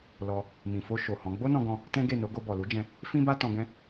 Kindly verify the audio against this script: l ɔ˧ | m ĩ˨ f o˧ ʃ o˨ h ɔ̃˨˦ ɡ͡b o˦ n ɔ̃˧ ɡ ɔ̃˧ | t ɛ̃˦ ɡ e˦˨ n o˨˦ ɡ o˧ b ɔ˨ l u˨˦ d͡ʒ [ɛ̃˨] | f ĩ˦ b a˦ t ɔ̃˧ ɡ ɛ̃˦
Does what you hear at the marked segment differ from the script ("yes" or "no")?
yes